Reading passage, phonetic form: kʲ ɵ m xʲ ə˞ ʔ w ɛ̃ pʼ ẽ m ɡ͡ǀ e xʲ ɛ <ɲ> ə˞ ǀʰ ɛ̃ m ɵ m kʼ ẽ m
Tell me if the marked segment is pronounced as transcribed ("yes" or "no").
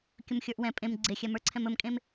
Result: no